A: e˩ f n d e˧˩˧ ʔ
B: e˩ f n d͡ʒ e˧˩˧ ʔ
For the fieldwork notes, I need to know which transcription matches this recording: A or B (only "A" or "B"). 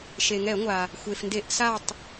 A